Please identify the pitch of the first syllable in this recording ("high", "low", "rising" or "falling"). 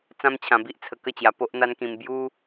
high